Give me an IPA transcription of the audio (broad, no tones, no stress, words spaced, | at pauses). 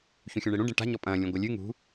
çũxʲũɳeɽũ ɖẽʈa̤ ɲɔpʼɐ̃ː lʲũɡʷɐlʲɨ ŋṳ